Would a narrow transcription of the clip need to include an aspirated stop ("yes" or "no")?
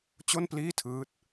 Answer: yes